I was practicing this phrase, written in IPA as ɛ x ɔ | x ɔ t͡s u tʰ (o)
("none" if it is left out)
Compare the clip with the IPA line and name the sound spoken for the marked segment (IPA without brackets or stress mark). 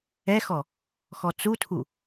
u